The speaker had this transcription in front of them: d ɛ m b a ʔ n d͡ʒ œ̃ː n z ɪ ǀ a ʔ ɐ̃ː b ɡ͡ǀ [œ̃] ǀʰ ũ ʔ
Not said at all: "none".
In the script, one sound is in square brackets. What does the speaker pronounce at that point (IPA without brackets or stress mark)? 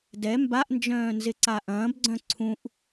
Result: œ̃